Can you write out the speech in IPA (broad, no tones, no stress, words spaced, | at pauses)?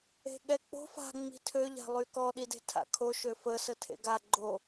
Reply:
e̤ɠɛk͡po̤ fa̤ ŋ͡mi̤tʰø ʎa̤lˠykɔ ɗide̤tʰa̰kʰo ʃøfə sətʰḛɡa ɡ͡ǃo